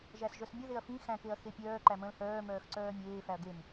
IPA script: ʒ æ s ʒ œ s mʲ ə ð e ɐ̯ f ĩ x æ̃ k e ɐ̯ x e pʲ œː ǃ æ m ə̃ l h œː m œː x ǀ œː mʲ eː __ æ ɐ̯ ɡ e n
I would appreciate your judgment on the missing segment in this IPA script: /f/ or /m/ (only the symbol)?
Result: f